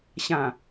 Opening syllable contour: low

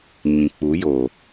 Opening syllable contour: low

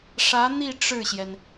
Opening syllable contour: rising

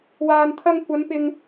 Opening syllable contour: low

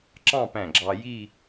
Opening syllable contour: falling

